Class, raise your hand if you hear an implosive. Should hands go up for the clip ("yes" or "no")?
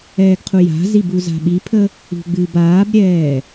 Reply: yes